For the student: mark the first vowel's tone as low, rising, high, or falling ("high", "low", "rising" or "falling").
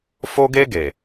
high